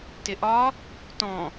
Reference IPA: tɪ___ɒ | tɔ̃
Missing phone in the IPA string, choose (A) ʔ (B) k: A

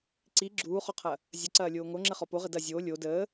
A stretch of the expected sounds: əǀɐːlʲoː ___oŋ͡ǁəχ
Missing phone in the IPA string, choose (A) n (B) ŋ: B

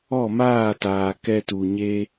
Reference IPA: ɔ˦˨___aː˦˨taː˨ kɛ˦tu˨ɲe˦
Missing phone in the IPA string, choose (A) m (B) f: A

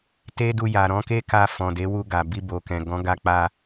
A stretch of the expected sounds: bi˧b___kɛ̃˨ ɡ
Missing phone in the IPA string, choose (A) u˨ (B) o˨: B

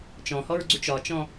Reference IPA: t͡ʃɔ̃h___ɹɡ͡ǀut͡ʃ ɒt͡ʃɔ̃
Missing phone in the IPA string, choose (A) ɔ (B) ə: A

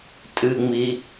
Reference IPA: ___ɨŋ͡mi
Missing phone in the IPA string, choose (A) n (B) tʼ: B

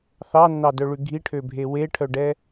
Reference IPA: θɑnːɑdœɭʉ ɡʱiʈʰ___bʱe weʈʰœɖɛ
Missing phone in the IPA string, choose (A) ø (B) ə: A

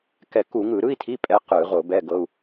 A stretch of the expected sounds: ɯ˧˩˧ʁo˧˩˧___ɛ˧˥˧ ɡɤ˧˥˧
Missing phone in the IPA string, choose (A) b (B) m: A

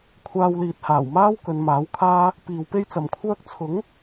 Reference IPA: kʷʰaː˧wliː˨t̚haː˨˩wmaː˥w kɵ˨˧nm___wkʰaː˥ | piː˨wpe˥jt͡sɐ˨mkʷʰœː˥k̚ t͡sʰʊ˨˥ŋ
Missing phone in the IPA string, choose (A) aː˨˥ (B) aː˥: A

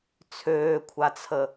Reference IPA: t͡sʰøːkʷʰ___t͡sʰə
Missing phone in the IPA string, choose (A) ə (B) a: B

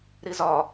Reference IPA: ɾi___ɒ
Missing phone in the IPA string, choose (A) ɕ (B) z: B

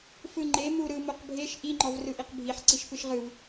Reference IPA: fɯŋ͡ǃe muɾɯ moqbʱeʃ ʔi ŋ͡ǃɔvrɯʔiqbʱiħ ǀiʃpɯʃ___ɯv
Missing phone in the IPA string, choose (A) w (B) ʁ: B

